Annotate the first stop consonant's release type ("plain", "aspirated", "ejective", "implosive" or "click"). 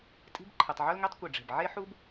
ejective